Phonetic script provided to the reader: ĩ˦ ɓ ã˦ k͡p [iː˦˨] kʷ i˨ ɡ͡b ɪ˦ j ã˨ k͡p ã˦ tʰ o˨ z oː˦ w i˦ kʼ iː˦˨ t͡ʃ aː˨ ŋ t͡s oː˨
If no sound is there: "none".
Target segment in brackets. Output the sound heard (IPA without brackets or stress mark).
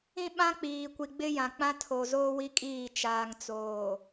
iː˨